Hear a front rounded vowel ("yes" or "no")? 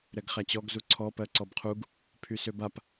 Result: yes